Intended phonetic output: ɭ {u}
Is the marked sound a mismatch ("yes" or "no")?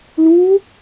no